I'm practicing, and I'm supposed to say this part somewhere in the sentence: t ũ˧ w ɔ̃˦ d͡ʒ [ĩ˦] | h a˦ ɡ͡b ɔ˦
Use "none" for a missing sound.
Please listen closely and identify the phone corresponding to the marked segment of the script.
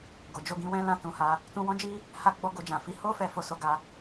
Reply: i˦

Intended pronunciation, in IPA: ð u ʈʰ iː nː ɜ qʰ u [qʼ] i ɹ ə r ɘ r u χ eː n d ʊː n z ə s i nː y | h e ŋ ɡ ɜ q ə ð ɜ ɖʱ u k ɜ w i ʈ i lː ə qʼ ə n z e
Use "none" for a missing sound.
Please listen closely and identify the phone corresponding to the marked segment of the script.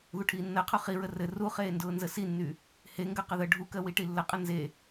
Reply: χ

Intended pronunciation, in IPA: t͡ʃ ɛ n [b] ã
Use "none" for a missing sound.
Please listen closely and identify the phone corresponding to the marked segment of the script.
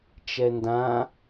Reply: d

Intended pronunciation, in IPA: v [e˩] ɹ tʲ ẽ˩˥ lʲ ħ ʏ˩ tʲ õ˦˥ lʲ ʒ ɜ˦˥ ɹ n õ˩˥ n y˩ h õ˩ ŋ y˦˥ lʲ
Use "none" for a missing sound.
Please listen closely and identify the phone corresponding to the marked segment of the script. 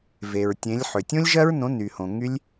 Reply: e˩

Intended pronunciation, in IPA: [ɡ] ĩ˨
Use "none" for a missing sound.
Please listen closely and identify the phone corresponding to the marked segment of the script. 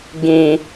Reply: ɡ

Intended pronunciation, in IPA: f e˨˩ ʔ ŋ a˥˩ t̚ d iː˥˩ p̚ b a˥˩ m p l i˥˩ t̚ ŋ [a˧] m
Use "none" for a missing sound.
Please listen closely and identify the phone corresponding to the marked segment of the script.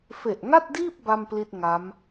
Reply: a˦˥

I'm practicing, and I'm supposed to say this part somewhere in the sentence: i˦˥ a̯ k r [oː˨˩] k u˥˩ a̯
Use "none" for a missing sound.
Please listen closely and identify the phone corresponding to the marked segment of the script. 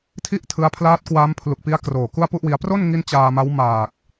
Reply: oː˨˩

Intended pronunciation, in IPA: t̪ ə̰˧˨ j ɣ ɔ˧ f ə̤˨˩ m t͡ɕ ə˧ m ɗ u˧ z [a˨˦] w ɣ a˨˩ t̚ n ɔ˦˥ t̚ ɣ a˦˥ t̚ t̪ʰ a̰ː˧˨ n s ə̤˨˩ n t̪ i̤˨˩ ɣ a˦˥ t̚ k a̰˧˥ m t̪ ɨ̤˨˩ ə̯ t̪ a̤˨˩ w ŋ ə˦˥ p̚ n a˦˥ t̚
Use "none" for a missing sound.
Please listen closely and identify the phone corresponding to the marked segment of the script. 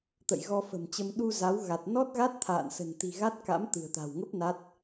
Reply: a˨˦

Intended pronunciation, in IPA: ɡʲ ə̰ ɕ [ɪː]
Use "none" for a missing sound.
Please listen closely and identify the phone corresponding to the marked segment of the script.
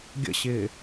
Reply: ɪː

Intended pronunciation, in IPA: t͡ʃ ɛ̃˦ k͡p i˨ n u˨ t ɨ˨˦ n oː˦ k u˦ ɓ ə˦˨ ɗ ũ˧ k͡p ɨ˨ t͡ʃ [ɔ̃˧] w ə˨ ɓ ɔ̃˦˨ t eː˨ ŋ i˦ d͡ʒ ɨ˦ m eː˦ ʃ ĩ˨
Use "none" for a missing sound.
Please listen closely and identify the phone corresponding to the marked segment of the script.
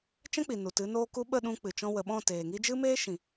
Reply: ɔ̃˧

